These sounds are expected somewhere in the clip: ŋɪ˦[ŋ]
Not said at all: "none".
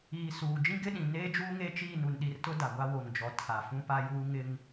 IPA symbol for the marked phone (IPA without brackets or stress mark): ŋ